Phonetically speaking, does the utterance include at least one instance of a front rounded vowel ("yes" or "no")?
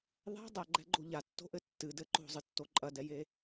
no